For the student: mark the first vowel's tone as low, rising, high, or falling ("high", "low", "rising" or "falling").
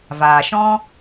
low